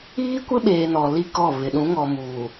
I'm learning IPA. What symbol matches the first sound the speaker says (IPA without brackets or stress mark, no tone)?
iː